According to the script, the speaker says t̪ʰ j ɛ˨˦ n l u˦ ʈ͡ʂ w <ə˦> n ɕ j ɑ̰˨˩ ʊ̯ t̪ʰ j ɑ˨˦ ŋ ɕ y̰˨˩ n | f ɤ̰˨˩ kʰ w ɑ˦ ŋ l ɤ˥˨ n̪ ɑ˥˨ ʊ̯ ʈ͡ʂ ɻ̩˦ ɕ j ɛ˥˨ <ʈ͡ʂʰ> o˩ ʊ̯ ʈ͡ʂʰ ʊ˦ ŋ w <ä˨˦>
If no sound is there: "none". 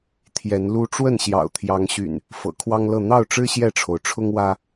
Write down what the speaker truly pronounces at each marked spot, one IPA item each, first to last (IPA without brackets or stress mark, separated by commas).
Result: ə˥˨, ʈ͡ʂʰ, ä˦